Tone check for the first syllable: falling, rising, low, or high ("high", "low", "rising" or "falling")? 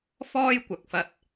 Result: high